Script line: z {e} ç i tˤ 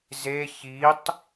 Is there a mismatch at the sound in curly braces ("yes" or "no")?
no